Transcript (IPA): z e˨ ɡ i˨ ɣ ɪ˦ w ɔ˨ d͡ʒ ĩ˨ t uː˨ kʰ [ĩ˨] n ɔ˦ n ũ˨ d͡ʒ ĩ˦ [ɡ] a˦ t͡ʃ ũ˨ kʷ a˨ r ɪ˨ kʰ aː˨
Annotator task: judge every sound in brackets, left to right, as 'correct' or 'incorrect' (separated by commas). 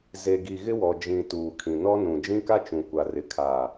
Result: correct, incorrect